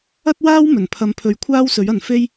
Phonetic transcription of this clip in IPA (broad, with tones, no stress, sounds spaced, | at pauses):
ɐ˥ t̚ w aː˥ w m ɵ˨˩ n pʰ ɐ˨˧ m pʰ ɵ˨˧ ɥ kʷʰ aː˥ w s ɵ˨˥ ɥ ɐ˨ n f e˥ j